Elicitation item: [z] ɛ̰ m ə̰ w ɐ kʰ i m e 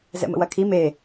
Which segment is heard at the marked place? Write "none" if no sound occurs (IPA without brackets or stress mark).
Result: z